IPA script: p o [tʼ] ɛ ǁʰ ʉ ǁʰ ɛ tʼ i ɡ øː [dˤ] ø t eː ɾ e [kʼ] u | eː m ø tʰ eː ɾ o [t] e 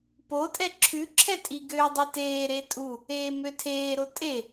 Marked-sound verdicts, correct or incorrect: correct, correct, incorrect, incorrect

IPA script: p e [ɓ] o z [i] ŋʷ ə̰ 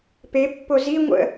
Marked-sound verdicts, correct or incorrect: incorrect, correct

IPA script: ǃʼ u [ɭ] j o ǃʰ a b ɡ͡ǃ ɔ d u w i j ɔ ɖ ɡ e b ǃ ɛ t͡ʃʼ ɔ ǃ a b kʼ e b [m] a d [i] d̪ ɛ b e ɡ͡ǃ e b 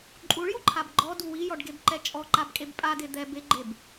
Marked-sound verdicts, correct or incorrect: correct, incorrect, incorrect

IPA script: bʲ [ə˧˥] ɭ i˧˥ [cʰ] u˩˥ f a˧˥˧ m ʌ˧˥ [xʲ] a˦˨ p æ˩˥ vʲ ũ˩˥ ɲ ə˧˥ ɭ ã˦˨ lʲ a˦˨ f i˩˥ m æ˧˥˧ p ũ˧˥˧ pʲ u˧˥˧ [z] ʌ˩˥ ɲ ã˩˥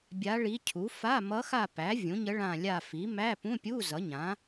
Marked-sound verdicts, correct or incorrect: incorrect, correct, incorrect, correct

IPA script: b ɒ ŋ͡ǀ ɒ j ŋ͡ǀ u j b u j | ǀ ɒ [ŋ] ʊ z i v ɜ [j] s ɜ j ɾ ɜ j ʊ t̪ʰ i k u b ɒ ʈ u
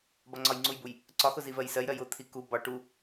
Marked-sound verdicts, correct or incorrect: incorrect, correct

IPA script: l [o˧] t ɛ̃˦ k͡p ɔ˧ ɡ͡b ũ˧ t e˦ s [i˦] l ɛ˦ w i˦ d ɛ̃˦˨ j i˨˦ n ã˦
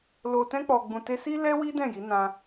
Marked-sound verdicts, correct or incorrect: correct, correct

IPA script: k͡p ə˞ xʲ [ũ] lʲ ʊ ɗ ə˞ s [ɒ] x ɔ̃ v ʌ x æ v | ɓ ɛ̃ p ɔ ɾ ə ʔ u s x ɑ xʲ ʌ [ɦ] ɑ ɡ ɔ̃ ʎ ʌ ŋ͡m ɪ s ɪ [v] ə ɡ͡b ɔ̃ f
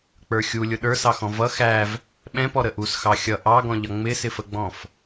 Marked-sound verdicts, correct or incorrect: incorrect, incorrect, incorrect, incorrect

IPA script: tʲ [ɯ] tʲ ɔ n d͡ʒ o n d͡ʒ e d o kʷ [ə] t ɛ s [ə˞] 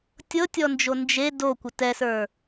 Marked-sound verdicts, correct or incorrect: incorrect, correct, correct

